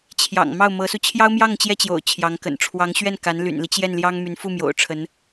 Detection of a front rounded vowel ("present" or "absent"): present